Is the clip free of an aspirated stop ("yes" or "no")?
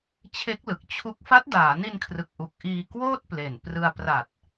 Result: no